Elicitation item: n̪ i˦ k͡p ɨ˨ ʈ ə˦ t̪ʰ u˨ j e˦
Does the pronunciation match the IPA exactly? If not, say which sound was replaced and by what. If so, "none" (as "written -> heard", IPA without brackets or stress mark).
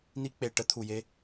ɨ˨ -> e˨